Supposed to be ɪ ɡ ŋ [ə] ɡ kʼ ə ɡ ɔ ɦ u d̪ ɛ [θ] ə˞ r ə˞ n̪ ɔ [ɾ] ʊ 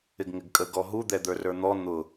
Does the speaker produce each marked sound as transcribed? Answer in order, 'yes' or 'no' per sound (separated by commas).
no, no, no